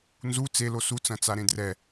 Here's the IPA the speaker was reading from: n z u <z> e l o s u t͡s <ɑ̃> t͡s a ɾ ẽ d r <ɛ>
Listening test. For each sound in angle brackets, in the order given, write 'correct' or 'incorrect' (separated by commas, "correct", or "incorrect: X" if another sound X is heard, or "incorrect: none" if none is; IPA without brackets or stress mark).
incorrect: t͡s, incorrect: ɐ̃, correct